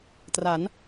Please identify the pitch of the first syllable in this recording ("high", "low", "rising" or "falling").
rising